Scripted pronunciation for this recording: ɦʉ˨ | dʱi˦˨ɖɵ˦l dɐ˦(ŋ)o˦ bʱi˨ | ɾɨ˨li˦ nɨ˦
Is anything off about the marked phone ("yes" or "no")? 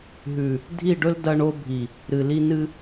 yes